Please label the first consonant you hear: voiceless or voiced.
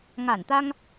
voiced